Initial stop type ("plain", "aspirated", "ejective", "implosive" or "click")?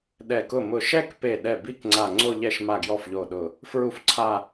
implosive